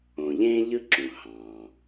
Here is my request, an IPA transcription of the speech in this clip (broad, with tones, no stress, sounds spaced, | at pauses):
õ˩ ʎ ẽː˥ ʎ ɯ˥ ǁ ũ˩ h ɑ̃ː˩